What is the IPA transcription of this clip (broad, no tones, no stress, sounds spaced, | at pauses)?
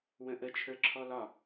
w ə̃ ʔ ə t͡ʃʰ ə˞ ǁʰ ɔ l ɒ